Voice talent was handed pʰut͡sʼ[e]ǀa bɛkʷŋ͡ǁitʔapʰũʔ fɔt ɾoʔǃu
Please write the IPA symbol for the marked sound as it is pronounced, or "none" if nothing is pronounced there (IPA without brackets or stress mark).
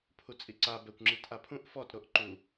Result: i